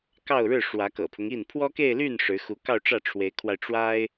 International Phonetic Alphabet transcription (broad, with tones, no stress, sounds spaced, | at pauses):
k ɑ˥˧ ʊ̯ ɻ ɻ̩˥˩ ʂ w ä˧˥ k ɤ̰˨˩ pʰ ʊ˦ ŋ i˥˩ n pʰ w ɔ˥ k e˥˧ ɪ̯ l y˥˩ n ʂ ɻ̩˧˥ x u˧˥ k ɑ˥˧ ʊ̯ ʈ͡ʂ ä˥˩ ʈ͡ʂʰ w e˧˥ ɪ̯ kʰ w a˧ ɪ̯ ʈ͡ʂ w a˥ ɪ̯